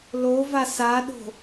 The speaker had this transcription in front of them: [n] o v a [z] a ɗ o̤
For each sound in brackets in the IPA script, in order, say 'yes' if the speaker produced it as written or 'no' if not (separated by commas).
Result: no, no